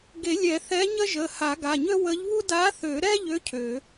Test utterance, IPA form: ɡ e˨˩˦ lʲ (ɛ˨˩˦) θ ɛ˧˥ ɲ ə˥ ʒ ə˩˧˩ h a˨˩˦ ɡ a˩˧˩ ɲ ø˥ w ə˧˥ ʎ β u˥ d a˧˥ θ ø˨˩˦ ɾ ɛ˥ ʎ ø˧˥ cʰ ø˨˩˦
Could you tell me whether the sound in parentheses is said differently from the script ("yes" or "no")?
no